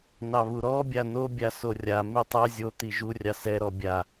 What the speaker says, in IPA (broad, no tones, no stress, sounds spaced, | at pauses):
n ɑ β u ɾ ɔ bʲ a n o bʲ a s o rʲ a m i tˤ ɛ zʲ o t̪ i ʒ u rʲ ɑ s ɛ ɾ ɔ bʲ a